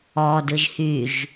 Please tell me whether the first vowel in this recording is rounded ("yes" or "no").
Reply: yes